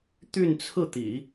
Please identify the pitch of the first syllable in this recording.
falling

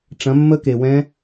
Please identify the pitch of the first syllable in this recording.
rising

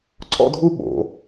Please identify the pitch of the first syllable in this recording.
high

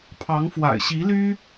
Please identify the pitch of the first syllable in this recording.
rising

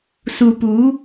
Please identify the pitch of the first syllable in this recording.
low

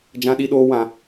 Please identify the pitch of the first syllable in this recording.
high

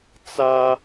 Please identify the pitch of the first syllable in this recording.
high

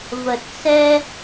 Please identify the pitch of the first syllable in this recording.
low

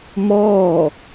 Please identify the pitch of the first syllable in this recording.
falling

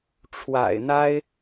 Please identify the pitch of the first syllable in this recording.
low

